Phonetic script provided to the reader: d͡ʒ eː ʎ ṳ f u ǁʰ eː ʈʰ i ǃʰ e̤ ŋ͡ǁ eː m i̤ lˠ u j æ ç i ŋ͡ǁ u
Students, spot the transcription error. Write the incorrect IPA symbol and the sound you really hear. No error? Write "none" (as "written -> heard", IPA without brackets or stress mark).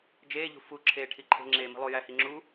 ç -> h